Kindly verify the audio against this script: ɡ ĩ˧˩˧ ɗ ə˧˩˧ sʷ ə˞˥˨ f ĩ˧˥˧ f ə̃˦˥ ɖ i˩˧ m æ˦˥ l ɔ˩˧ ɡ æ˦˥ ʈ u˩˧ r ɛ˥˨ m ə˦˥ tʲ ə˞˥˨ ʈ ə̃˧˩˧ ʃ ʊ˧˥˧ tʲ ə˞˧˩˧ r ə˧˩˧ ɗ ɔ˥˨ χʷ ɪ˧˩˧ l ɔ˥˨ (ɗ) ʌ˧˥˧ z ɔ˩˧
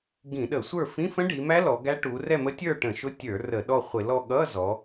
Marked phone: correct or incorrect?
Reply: incorrect